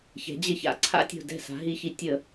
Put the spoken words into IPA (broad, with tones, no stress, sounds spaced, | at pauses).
ç ɛ̤˩˧ d͡ʑ ɪ˧˩˧ ç a̰˩˧ ǀʰ a̰˦ tʲ o̤˧˩ d ɛ̤˧˩ s a̤˩˧ ɦ i˧˩˧ ç i˩˧ tʲ ə˧˩˧